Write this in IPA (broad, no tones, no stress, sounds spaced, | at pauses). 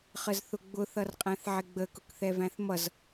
χ ə z θ ʊ ɡ͡b ʊ θ ʌ r qʼ æ̃ θ ʕ ɪ ɡ͡b ə k ʊ k θ ɛ v æ̃ θ m ʌ z